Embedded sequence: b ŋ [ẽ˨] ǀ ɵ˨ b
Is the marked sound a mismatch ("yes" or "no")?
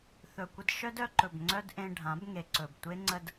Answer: yes